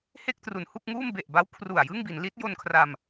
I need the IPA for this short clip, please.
he˥˩k̚tru˩˦nhu˥˩k̚ŋuː˥˩m be˨˩ʔba˦˥w kʰru˨˩a̯jɯ˥˩ŋ bi˩˦nli˦˥t̚ jo˧nkʰra˧m

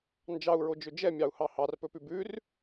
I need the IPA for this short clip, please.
nd͡ʒɑu̯ɹod͡ʒɵ d͡ʒɛmʲɑu̯hɑ hɑrpɵpʉ bʉr

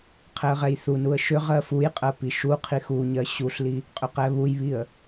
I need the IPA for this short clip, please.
qʰɛə̯ʁɛjθunuə̯ ʃʏ ʁɜfujqʼɜ piʃuqʰi xuɲɜ ɕuɬli | qʼʏqɛβujβiə̯

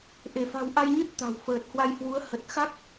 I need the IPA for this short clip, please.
ʔe˧˩fa̤˨˩wʔa˧jɲɨ˦˥t̚ t̪a̤˨˩w fəː˨˩t̚hwa˧jhwu˨˦ə̯ hə˨˩t̚xa˦˥k̚

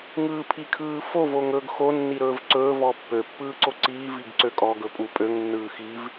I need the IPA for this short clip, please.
ŋɯːpʰikʰɯːfov oŋɵːɡxo nːiɾɵːvǀɵː vɔpːø pːɯːǀoǀiː viɡǀøkʼɔ ɡɵpʼupʼøŋ nːɯːxiv

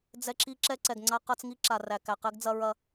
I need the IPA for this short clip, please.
d͡zɛ˦ǁi˦ ǁɛ˦ǀɛ˨ɡŋ͡ǀa˦ qɐ˦t͡s ŋi˦ǁa˨ ræ˨kæ˨qɛ˦ɡ d͡zɐ˦ɹɐ˦

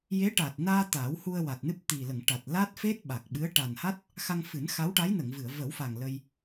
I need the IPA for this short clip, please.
je˧˥ʈaː˨˩t̚naː˧ t̪aː˨˩˦whu˧ə̯wa˨˩t̚nɨ˦˥p̚ t̪i˨˩lə˨˩˨ŋʈa˨˩t̚ la˦˥t̚fe˦˥t̚ ɓa˨˩k̚ɓɨ˧˥ə̯ ʈa˨˩nha˦˥t̚ | xa˧ŋfɨ˨˩˦nxa˧˥wʈa˧˥j nə˨˩˨ŋvɨ˨˩˨ə̯ və˨˩˦wfa˨˩ŋ lə˧j

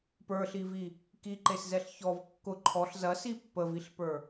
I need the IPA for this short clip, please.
pə˞ɬivi | kiǃeszɛɬ çɔv kːʊ ǃʰɔɬ zɐsi pːəviɬpə˞

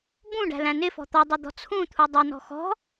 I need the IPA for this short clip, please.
bũɖæ̤læ̃ nɪfɔ̤ t̪ɔdˤʊd̪ɔ̤ t͡sʰũt̪ʰu dˤænɔ̤ xɔ̤

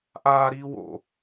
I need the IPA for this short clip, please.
ʔaːɾiː wo̰

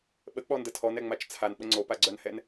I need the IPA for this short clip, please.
ɓək͡pɔndə tʰɔnɛŋ͡mat͡ʃ t͡sʰanɓə ŋ͡ǀopaɡ͡ǀœnhɛn

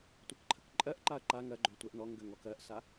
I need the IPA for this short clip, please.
tʷɜkǃʰəkǃʼɜʔǃaɐ̯ ǃa ŋɜɡ͡ǃø tʷɛʔnɔŋɡøŋ ɔkɜʔsa

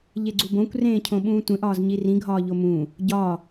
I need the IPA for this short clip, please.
ʎeɡ͡ǀubõkʷ rẽːcʰõɓũːtʷẽʔ ɒːzɲirĩ ɡʱɒːʎomũː | ɟɒː

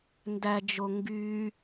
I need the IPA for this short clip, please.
ndæd͡ʒo ŋɡy

